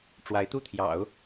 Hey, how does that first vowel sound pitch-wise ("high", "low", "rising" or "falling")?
rising